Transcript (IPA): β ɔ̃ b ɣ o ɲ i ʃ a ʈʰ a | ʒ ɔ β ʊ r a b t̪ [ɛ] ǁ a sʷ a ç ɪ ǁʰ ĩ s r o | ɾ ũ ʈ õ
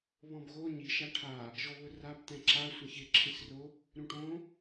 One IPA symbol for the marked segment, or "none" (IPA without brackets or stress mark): ɛ̃